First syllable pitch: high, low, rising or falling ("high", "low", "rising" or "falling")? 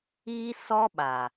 high